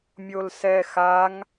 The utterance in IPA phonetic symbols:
mʲ o l s ɛ x a ŋ

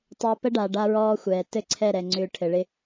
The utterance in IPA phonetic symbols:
tˤ e˧ p ə˦ ɖ a˨ ɖ a˦ ɹ ɔː˦ xʷ ɛː˨ t ɘ˦˨ ǀʰ ɛ˦˨ ɾ ɛ˨ ŋ͡ǀ ʏː˧ ʈʰ ɘ˨ ɭ ɪ˦

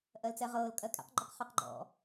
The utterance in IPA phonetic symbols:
ʔ ɜ l t͡s ɛ ʁ ɤː l kʼ ɜ kʼ ɛ̰ q ɡ͡ǃ ɵ q χ ɵ q ɡ͡ǃ ɔ̰

